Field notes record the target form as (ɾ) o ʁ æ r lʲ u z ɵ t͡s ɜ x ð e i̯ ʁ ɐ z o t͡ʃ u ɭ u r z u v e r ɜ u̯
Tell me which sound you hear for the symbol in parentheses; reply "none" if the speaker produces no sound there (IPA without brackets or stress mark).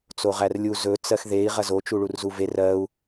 t͡s